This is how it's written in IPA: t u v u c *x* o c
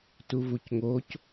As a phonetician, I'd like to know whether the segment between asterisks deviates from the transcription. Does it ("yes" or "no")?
yes